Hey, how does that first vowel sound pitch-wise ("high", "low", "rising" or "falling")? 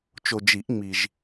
low